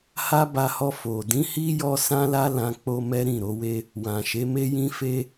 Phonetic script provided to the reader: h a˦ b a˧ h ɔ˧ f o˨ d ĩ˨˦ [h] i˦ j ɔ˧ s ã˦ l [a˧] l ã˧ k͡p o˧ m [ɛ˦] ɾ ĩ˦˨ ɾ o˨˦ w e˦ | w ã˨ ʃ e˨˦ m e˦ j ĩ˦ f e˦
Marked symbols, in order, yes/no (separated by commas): yes, no, yes